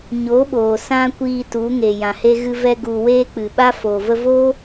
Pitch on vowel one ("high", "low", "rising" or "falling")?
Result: rising